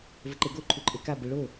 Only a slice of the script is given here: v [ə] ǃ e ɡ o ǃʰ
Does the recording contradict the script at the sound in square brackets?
no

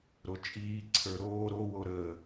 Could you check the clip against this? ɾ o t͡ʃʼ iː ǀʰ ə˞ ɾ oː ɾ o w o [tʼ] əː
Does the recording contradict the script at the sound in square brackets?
yes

